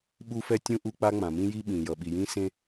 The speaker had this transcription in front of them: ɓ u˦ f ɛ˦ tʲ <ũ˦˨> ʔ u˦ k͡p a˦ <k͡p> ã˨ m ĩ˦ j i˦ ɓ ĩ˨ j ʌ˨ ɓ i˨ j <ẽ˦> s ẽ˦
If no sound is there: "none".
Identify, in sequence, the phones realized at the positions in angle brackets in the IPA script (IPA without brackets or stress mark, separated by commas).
ũ˦, ŋ͡m, ĩ˦